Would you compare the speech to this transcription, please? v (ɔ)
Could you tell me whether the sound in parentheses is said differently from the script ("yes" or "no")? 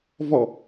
no